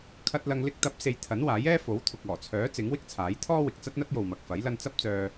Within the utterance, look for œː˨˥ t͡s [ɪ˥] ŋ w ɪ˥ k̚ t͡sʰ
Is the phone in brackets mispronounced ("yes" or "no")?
yes